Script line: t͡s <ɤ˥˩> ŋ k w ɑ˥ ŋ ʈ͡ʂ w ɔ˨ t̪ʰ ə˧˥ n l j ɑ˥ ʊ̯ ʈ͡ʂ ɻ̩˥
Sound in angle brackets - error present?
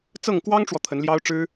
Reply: no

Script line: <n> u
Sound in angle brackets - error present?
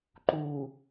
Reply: yes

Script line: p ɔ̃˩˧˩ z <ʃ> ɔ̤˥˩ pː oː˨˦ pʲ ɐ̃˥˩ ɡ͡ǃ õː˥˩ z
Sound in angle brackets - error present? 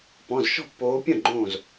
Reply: no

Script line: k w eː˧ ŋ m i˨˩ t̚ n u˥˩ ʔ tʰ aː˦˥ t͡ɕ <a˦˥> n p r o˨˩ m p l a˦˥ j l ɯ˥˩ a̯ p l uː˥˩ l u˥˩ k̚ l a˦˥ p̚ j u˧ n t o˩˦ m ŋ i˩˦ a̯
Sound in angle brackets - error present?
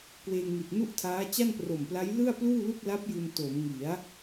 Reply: yes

